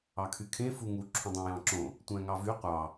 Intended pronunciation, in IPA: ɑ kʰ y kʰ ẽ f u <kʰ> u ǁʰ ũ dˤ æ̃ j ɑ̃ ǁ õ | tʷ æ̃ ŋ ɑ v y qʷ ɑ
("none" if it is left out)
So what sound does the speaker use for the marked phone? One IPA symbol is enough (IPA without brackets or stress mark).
ŋ